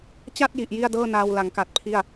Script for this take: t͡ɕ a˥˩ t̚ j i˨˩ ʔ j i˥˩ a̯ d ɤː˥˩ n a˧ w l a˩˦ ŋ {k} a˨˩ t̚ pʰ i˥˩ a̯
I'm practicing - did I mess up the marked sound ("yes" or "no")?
no